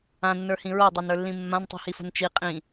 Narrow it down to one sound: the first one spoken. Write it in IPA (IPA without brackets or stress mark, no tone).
ã